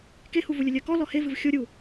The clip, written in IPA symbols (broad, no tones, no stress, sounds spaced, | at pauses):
k e h u v u lʲ ə lʲ ɜ k ɔ l ɔ h e v ɨ v xʲ o ɾʲ u